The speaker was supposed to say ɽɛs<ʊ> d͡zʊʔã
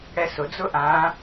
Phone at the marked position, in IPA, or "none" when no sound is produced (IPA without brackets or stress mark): ʊ